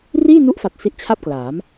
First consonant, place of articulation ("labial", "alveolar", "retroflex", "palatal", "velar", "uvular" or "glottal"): alveolar